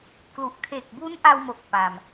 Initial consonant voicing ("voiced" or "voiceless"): voiceless